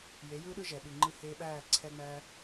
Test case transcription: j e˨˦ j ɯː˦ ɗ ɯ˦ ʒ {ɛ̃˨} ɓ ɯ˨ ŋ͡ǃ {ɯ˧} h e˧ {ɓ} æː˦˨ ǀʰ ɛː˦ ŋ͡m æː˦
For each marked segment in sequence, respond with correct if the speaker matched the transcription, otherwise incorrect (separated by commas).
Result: incorrect, correct, correct